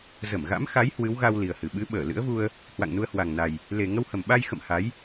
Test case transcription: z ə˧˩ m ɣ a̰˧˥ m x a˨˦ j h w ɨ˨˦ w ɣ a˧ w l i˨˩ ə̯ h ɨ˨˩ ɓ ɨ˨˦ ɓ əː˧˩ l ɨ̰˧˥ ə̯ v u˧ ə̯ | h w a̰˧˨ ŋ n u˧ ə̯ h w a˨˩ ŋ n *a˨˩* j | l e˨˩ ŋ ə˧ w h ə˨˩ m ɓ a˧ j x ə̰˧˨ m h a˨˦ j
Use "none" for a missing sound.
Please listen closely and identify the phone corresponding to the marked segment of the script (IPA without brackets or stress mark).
a˨˩